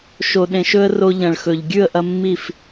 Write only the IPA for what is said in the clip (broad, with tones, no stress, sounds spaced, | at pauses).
ʃ o˨ ɗ ẽ˨ ʃ ɵ˦ ə̯ r o˧ ʎ ɐ̃˨ ɭ x ɵ˨ ʎ ɡʲ ʉ˦˨ ə̯ ʔ ɐ˧ mː i˦˨ f